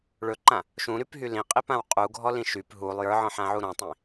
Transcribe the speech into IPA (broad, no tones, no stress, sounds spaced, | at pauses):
ɭ ɵ ǃ ã | ʃ ũ ɾ y p ɦ y l ĩ qʼ i p ã w qʼ u ɡʱ ɔ l ĩ ʃ y p ɦ u lˠ j ə˞ ʕ ɔ̃ ħ ã ʕ u ɾ ɔ̃ tˤ ĩ